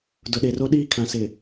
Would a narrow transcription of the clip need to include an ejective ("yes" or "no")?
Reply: no